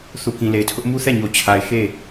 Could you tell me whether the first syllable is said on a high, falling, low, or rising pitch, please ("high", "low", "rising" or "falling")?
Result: low